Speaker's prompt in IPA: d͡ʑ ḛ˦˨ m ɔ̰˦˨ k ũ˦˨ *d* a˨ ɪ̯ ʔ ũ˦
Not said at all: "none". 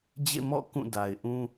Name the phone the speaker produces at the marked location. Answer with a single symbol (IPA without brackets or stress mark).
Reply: d